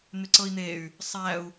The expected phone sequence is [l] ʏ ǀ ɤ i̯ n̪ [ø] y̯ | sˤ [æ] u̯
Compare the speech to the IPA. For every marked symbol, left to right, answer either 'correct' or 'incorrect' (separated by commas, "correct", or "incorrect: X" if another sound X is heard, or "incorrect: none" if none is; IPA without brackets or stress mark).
incorrect: n̪, incorrect: e, correct